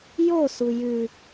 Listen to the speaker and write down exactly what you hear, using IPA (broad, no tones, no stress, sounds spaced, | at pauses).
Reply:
j o s u j ʉ